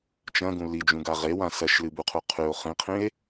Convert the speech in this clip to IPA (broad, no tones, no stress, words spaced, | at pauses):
t͡ʃɐ̃ɡũ lid͡ʒũɡa ʁewã sɐʃlɨbuqʰu qʰʉo̯ χĩqʰĩe̯